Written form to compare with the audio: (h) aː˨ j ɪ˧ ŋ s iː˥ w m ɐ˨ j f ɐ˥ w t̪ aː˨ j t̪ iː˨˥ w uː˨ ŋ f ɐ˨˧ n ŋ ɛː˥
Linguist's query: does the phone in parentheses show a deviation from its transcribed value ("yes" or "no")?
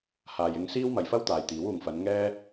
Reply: no